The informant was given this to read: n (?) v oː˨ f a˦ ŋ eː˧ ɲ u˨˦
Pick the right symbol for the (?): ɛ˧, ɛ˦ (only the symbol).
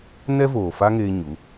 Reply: ɛ˦